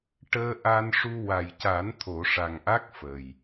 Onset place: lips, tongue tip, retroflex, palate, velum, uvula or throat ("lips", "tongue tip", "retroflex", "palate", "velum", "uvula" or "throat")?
retroflex